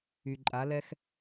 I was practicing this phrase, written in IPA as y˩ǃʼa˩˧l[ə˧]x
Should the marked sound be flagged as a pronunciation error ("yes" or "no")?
yes